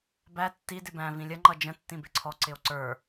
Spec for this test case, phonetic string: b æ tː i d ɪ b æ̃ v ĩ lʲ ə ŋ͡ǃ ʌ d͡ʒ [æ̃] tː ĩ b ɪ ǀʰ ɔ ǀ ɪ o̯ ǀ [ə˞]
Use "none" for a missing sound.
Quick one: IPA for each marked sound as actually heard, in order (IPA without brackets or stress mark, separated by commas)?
ə̃, ə˞